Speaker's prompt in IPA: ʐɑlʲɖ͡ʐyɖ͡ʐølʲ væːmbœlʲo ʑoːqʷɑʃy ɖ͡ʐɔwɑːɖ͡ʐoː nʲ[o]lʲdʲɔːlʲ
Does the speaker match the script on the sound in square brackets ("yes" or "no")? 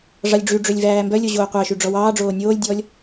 no